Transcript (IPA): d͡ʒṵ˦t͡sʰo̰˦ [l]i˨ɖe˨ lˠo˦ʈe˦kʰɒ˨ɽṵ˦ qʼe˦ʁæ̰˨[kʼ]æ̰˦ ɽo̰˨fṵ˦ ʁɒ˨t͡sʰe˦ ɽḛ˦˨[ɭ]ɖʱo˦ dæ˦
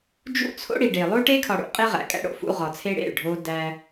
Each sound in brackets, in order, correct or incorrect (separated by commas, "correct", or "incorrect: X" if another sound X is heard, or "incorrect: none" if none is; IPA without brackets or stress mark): incorrect: ɽ, correct, correct